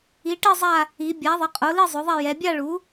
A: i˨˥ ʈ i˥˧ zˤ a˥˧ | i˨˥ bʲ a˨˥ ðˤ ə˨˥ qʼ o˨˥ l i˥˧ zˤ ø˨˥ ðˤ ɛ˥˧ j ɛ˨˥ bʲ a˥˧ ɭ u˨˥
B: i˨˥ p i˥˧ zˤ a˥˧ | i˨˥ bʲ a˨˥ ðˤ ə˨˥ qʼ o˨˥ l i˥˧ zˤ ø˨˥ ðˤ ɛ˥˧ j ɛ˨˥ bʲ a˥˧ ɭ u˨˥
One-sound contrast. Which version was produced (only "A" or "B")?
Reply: A